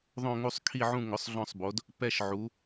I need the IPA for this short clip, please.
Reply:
ðˤ õ˥˧ ŋ u˥˧ sˤ kʰ i˥˧ ʕ ũ˥˧ ŋ ʊ˨˥ sˤ ɮ ɔ̃˥˧ sˤ b o˨˥ d | p ɛ˥˧ ʃ ʕ u˨˥

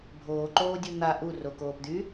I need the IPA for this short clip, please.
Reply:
bʱ oː ǃ oː dʲ u n̪ a ʔ u r o k oː p d̪ y

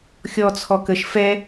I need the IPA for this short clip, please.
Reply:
xʲ ɔ t͡sʰ ɔ k ə ʃ f ɛ

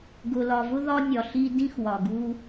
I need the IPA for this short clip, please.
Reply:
ɡ ʊ˨ l ɒ˨ v ʊ˥ ð ɒ˥ nʲ ɒ˨ ɬ i˥ d ĩ˥ x w ɒ˩ ɡ u˦

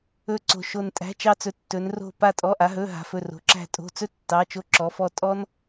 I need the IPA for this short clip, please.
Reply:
ɵ˧˩ ǀ o̤˧˩ ʃ o˧˩ n tʼ æ̤˩˧˩ t͡ʃ ɑ˧˩ t͡s ɵ˩˧ tː ɵ˩˧ n r o̤˧˩ p a˧˩ tʼ ɔ˩˧˩ ʔ a˩˧ ɦ ɵ˩˧˩ ɦ a̤˩˧˩ f ɵ˧˩ r o̤˩˧ ǁ æ̤˧˩ tʼ o̤˩˧˩ t͡s ɵ˦ tː ɑ˩˧˩ t͡ʃ o˧˩ ǁ ɔ˩˧ f ɔ˧˩ tʼ ɔ˦ n

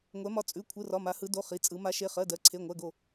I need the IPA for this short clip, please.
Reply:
ŋʷ ɛ˩˧ m ɒ˩˧˩ t͡sʼ ʉ˩˧˩ kʷʰ ɯ˩˧˩ r ɒ˩˧˩ m a˩˧ h ɯ˩˧ d o˩˧˩ χ i˩˧˩ t͡sʼ ɯ˩˧ m a˩˧ ʃ e˩˧˩ χ ɜ˩˧˩ d ɜ˩˧ ǀʰ e˩˧˩ ŋʷ ɜ˩˧˩ ɡ o˧˩

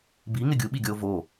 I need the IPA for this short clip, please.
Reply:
b i ŋ ɪ ɡʲ u ɓ i ɡʲ ɔ o̯ v o

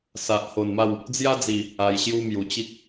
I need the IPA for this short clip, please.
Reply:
s a˨ ʔ h o˨˩ n m a˥˧ w | d͡z j a˦ d͡z i˨˩ | a˧ j ɕ j u˦ m j u˨˩ t͡ɕ i˦ k̚

